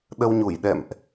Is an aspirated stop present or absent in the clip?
absent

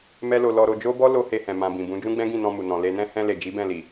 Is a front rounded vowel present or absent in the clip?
absent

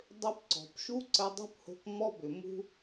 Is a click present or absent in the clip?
present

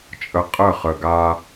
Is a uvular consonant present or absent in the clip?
present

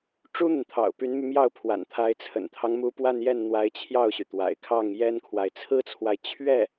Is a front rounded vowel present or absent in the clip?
present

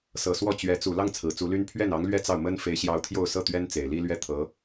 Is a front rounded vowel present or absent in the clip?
present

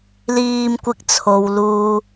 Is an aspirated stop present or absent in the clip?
present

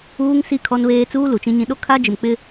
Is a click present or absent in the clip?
absent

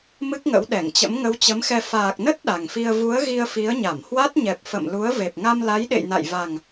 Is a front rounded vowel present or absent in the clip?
absent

